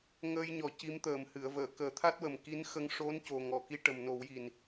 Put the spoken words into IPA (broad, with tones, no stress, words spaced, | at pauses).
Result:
ŋəː˧jɲɔ˨˩˦ ci˧˥mt̪əː˨˩m hɨ˨˩˨ə̯vəː˨˩˨ kəː˨˩˦t̪ʰa˦˥t̚wə˨˩m ki˧˥n xə˧ŋ ʂo˧˥n co˨˩ŋɔ˨˩˨ki˧ ʈə˨˩mno˨˩˦wji˨˩n